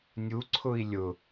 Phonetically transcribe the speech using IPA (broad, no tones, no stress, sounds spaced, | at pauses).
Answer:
nʲ u ǀʰ ʊ i̯ lʲ ʊ